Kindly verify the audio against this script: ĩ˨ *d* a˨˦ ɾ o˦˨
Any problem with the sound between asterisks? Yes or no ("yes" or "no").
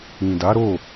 no